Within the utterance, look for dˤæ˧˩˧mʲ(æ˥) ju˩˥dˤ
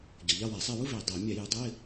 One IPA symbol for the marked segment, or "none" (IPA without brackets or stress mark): æ˧˩˧